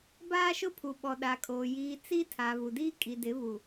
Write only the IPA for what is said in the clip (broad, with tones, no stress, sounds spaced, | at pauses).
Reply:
b aː˦ ʃ ʊ˦ pʰ u˨ ɓ ɔ˨ ɗ a˨ kʼ oː˨ j iː˨ t͡s i˦ tʰ a˨ β u˨ d iː˦ kʼ i˨ d ɪ˨˦ β u˨